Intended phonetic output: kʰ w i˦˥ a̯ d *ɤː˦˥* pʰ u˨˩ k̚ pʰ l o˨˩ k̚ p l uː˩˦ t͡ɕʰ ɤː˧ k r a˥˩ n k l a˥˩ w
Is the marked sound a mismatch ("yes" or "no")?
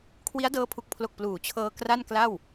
no